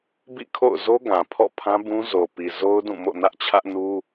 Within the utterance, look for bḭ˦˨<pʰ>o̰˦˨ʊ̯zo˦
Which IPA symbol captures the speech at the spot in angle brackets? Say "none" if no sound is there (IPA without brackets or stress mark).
kʰ